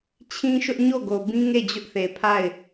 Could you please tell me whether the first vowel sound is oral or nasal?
nasal